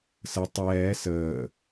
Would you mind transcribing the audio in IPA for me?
sə tˤɛː səː

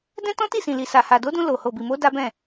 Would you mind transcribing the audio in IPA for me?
dɛ̃˦ tɔ̃˦ti˦˨sĩ˨li˨ sa˨ha˨do˨˦dũ˧ lo˨ ho˨bi˨mo˨˦ da˦bɛ̃˦˨

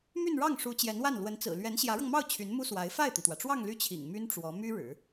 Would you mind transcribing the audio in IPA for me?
my˥˧nɻɑ˥˩ŋʂu˧˥ t͡ɕjɛ˧˥nwa˥˩n lwə˧˥n t͡sɹ̩˨˩ lɥɛ˧˥nɕjä˧˥ɻɤ˧ŋmɑ˥˩ʊ̯ t͡ɕʰy˧˥nmu˥swa˧˥ɪ̯ fa˥˩ɪ̯t̪i˩t̪wä˩ʈ͡ʂwɑ˥˧ŋ ly˥˩t͡ɕʰḭ˨˩ŋ my˥nʈ͡ʂwɔ˧˥ my˥ ɻɻ̩˨˩˦

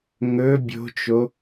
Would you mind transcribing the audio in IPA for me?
ŋɵ bʲo̤t͡ʃo

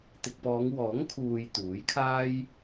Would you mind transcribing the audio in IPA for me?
t̪ɪ˨k̚pɔː˨˧ŋwɔː˨˥ŋ kʰuː˨j t̪uː˨˥jkʰaː˥j

